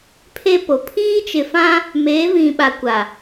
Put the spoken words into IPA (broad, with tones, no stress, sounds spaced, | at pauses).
pʰ e˦ p o˨ pʰ iː˦ t͡ʃ ɪ˨ f ã˦ | m eː˨˦ v ĩ˨ ɓ a˨ kʷ a˨